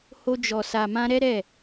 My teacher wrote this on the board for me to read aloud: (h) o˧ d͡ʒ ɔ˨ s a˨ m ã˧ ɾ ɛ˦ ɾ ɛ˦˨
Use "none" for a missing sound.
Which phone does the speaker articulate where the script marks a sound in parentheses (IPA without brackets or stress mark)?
h